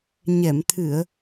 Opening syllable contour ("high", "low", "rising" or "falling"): low